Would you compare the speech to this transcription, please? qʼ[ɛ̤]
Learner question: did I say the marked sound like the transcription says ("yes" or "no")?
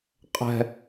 yes